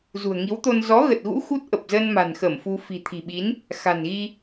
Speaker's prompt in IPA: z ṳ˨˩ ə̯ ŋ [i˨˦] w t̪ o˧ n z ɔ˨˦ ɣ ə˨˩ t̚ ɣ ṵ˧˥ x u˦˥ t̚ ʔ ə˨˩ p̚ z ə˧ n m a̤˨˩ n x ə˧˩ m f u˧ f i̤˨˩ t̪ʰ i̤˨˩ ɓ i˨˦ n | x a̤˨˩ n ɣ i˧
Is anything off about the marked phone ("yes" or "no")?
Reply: no